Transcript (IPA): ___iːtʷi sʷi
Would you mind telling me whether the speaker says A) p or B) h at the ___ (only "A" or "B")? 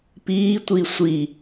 A